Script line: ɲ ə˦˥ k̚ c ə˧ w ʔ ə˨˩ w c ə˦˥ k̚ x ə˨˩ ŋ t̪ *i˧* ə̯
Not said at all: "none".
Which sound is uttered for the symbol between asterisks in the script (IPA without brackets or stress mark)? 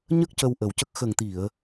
i˨˩˨